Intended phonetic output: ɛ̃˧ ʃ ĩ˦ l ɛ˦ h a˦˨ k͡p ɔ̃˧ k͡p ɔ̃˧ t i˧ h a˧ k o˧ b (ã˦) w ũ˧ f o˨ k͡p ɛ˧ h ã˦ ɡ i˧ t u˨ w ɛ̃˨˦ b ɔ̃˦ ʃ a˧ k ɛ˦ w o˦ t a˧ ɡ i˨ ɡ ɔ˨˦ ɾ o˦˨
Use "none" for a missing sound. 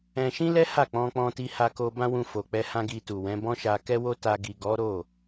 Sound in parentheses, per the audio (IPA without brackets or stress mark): ã˦